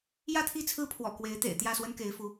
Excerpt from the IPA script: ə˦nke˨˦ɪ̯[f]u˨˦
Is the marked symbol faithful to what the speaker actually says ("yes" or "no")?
yes